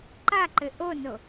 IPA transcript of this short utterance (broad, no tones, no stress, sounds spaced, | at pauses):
ǃ a ǃ ɘ ʔ o n o